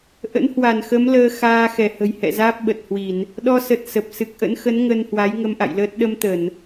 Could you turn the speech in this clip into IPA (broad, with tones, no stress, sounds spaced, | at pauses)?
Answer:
ʔ ə̰˧˥ n h w a˧˩ n x ə˨˦ m l əː˧ x aː˧ x ɛ˧˩ h ə̤˨˩ j h ɛ̰˧˨ z aː˦˥ p̚ ɓ ə˨˩ t̚ h w i˧˩˨ n | ɗ ɔ˧ s ə˨˩ t̚ s ə˨˩ p̚ s ɨ˨˩ k̚ ʔ ə̰˧˥ n x ə˨˦ n ŋ ə˧ n h w a˨˦ j ŋ ə˧ m ʔ a̰˧˨ j l əː˦˥ t̚ ɗ ə˧ m t̪ ə˧˩˨ n